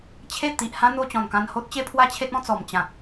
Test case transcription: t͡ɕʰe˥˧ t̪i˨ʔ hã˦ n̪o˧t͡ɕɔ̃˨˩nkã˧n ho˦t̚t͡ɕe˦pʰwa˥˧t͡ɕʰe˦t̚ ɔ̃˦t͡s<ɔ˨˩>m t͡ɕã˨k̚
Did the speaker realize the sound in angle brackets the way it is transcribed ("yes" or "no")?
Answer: yes